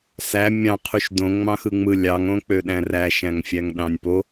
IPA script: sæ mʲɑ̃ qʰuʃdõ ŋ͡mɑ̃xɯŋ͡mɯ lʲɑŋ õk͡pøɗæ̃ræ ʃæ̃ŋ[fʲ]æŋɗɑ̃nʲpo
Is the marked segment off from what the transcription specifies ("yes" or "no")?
no